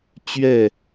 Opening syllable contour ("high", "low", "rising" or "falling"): falling